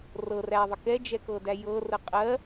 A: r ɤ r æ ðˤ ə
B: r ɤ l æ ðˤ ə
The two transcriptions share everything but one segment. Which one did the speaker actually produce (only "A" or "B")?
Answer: A